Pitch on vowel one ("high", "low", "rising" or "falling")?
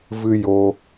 high